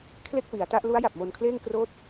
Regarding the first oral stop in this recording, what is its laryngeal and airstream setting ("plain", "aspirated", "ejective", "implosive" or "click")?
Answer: aspirated